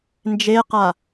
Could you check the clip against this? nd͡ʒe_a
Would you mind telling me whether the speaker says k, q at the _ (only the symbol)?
q